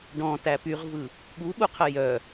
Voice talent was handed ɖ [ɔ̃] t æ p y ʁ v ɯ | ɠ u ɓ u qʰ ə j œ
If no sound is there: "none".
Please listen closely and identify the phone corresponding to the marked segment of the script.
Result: ɔ̃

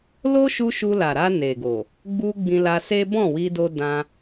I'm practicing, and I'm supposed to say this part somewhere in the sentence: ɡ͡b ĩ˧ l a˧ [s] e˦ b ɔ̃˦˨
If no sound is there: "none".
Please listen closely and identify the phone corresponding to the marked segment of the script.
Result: s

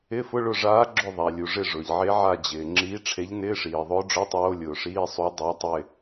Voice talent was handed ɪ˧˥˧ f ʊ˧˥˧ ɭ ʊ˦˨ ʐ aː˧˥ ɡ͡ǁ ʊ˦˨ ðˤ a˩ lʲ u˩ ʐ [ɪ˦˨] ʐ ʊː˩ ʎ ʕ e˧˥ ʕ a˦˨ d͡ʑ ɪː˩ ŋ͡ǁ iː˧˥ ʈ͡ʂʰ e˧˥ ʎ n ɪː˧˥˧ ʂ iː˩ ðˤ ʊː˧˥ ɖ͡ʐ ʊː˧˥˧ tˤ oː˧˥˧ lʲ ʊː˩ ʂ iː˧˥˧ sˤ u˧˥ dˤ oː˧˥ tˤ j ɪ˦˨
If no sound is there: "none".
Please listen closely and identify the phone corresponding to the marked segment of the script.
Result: ɪ˦˨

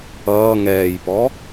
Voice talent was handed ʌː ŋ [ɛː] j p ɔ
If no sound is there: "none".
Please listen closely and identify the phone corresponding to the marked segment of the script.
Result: ɛː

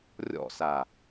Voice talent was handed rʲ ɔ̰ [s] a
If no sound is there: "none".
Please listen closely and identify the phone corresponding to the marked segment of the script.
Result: s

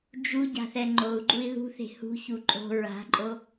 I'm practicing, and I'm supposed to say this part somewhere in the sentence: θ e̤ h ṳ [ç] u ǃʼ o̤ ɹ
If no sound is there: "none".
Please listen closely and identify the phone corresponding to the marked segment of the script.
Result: ç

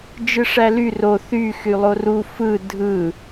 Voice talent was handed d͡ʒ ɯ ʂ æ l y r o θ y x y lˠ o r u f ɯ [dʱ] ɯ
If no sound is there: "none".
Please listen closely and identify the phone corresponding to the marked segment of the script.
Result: dʱ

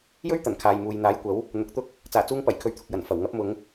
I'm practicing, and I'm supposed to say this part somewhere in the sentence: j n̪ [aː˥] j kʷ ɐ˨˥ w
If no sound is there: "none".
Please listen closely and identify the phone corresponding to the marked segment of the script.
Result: aː˨˥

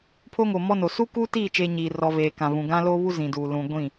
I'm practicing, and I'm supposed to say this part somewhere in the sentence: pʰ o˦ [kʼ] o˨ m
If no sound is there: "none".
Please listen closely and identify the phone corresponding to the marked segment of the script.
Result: ŋ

